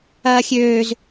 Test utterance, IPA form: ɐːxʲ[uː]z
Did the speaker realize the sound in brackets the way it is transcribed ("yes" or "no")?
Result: no